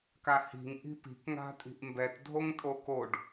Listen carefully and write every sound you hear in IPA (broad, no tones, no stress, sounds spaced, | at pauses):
k a h i̤ ŋ ʔ i̤ p i̤ k ŋ a̤ tʼ i̤ ʔ m b ɛ t dʱ o ŋ tʼ o k o ɖ